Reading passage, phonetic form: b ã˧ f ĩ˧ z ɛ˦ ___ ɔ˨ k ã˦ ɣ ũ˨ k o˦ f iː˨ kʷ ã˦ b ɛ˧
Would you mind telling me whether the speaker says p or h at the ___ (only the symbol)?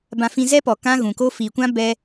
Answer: p